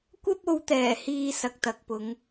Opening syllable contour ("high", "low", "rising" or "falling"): high